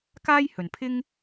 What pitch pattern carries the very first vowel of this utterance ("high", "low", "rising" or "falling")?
high